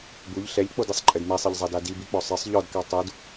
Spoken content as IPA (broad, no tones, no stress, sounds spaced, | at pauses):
b u ʎ ɬ ɛ ʎ k͡p o d i sˤ ǃʼ ɘ d m ɛ sˤ ɘ ʎ zˤ a d a d i b i k͡p ɔ sˤ ɘ sˤ ʎ ɔ d k a tˤ u d